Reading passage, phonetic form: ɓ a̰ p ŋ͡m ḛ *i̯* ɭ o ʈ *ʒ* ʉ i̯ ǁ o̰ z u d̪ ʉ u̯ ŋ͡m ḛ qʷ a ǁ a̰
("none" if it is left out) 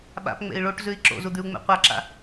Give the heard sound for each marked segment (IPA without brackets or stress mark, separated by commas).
i̯, z